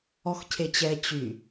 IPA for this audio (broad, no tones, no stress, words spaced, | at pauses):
ɔxcʰet͡ɕɛ t͡ɕy